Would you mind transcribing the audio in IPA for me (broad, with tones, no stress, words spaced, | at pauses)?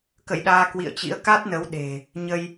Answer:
kə̰˧˨jɗaː˧ kwḭ˧˨ə̯t͡ɕḭ˧˥ə̯ ka˦˥t̚nə˨˦w ɗe̤˨˩ | ɲə˧j